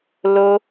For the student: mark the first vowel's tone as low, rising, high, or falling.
high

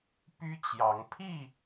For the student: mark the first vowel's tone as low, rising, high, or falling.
high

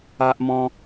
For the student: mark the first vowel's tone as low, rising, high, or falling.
high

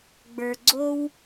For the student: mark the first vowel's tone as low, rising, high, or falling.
low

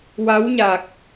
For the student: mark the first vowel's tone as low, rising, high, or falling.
rising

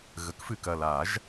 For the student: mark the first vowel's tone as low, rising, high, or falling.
rising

